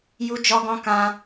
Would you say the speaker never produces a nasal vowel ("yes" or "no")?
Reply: no